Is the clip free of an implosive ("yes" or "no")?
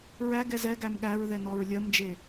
no